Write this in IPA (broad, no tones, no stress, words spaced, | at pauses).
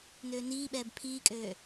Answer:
nøːniːɓɛːb pʰiːkʼøː